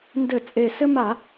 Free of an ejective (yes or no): no